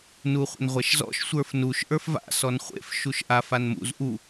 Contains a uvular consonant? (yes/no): yes